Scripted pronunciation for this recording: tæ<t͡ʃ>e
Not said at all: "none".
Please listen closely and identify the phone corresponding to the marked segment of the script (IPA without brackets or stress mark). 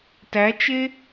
t͡ʃ